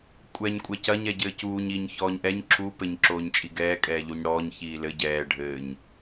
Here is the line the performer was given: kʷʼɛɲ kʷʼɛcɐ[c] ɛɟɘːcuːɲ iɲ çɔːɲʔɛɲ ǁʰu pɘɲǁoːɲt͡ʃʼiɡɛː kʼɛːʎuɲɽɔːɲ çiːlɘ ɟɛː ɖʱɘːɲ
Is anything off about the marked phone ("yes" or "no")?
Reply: yes